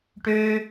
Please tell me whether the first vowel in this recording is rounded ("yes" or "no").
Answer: yes